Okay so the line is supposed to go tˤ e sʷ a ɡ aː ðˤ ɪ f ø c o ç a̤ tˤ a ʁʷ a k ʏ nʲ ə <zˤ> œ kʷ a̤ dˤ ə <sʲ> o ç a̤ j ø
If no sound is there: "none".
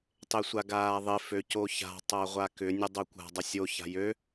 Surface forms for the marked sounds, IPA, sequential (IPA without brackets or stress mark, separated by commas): dˤ, sʲ